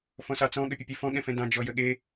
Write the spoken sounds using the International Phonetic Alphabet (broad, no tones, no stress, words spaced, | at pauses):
fɔ̃sɑt͡sɔ̃ ɠəpʲəpʲɛfɔ̃ ɠɛ̃fɛ̃dɑ̃ d͡ʒɔjəɠe